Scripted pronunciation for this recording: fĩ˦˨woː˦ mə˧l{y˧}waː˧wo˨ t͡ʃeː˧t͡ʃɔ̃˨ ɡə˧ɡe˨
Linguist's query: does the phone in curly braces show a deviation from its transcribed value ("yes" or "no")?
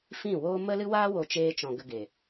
yes